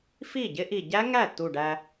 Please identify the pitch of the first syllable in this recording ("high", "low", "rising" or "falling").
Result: falling